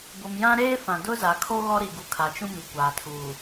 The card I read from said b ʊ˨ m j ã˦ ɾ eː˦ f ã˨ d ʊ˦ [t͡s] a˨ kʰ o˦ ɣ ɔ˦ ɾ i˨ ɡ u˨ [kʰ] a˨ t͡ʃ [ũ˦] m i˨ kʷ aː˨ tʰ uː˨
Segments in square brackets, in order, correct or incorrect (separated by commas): incorrect, correct, correct